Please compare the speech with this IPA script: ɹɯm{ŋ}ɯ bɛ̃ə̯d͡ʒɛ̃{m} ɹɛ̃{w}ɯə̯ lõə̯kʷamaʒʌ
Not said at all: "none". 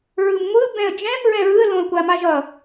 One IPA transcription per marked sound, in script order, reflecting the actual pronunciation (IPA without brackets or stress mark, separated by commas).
ŋʷ, m, ɹ